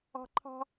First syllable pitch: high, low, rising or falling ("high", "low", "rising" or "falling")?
high